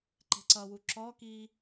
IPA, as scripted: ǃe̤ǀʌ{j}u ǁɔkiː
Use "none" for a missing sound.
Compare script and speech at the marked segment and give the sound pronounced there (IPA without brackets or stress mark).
w